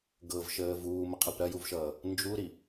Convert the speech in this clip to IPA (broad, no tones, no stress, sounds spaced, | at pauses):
ɡ ɤ v ʃ əː v uː m ə qʰ ɐ p ɾ ɐ j u v ʃ ʌː | n d͡ʒ u ɾ i